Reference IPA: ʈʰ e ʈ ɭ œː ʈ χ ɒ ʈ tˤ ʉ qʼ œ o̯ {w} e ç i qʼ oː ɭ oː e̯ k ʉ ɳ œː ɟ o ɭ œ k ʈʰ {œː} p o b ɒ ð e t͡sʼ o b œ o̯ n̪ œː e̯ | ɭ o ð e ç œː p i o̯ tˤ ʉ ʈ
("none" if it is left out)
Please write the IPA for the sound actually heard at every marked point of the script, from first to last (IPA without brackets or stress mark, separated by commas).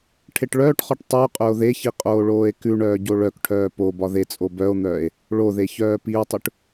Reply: ð, œː